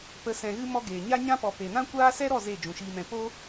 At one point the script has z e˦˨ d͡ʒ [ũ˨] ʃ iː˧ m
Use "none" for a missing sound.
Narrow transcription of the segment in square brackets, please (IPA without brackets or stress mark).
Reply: ũ˨